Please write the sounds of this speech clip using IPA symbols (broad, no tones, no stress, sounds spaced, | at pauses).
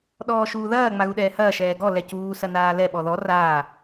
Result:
ɗ ɔː ʃ uː ð ɐː ŋ͡m a ɣ u ɗ ɛː h ɐː ʃ ɛː ɡ ɔ l ɛ c uː s ɐ n aː l ɛ ɓ ɔ ð ɔ r aː